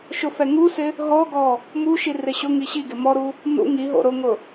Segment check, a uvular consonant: absent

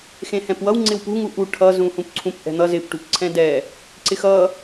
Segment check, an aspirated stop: present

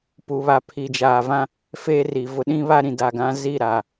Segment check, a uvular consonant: absent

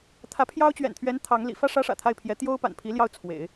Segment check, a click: absent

